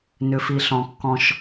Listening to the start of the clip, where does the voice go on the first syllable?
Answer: low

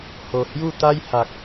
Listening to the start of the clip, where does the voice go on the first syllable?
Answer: low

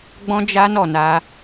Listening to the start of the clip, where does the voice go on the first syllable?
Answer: high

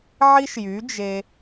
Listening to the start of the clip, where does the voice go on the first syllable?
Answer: high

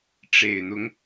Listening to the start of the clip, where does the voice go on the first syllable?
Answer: low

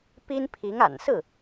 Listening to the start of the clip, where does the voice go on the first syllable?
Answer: high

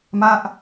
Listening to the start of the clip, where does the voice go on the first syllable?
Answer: falling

